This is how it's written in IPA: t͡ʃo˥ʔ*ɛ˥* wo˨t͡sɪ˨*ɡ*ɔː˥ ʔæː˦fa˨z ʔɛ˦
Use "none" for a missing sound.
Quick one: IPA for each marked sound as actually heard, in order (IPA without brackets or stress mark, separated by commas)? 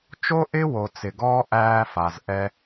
ɪ˥, ɡ